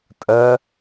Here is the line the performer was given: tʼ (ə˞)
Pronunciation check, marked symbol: incorrect: ɜ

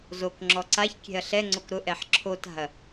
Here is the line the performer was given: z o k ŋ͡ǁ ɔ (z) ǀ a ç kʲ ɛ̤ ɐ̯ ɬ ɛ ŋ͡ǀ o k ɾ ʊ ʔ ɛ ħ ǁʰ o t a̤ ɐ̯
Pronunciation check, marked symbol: incorrect: none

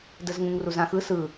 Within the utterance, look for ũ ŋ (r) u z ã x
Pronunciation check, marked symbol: correct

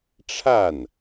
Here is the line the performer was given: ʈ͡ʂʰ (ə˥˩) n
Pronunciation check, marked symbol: incorrect: a˥˩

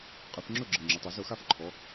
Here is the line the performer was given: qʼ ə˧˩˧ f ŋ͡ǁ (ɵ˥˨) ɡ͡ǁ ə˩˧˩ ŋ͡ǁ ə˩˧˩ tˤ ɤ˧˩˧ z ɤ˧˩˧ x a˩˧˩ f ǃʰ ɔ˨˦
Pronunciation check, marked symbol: correct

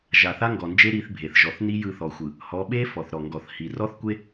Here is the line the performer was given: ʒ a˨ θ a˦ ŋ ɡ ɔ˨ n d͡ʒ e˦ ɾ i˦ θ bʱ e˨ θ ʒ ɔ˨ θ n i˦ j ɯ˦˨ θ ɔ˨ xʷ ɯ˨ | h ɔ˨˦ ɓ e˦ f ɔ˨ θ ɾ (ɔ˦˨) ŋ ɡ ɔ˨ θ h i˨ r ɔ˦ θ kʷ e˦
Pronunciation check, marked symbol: incorrect: ɔ˨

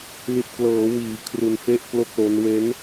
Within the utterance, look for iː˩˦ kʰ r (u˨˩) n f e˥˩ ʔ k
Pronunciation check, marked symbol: incorrect: u˧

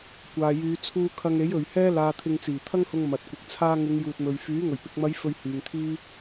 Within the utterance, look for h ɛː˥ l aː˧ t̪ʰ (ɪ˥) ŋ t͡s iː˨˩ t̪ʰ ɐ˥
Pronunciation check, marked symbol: incorrect: ɪ˧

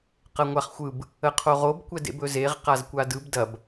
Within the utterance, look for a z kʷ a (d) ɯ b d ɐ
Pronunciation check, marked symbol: correct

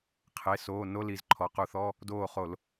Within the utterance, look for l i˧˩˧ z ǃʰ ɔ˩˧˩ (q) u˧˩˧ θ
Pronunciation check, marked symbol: correct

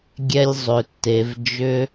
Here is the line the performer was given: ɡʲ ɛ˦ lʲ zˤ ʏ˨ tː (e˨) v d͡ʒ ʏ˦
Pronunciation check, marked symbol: correct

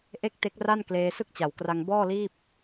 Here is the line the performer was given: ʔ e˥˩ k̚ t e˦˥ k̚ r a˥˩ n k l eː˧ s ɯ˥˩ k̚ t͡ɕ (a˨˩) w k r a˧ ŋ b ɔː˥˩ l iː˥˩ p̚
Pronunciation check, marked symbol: correct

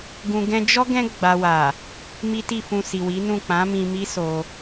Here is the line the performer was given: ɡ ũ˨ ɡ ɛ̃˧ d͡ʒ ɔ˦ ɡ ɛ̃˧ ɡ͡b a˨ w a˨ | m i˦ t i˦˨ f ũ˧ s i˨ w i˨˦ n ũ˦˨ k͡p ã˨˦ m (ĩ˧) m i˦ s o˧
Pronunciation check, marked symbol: correct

